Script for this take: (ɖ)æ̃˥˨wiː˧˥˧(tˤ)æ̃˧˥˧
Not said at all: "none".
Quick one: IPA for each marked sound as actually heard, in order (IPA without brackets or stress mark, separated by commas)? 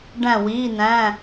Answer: ɖ, n